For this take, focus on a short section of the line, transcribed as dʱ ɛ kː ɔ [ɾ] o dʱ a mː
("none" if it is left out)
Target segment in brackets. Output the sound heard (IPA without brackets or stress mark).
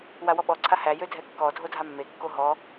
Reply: dʱ